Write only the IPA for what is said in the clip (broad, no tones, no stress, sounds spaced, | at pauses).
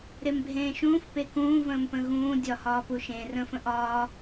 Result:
ɾ e m bʱ ẽː ʃ ũː f p e k ũː v ə̃ː m p ə̃ ɣ ũː dʲ ɒ h ɒː p u ʃ ẽ r ə̃ f ə̃ ʔ ɒː